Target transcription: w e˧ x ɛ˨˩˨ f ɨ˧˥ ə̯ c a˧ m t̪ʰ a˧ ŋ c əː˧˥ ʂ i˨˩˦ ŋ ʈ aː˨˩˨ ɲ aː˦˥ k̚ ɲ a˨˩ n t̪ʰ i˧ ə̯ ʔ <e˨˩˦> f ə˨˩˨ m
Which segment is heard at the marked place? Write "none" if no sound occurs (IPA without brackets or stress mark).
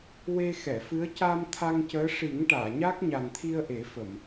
e˨˩˦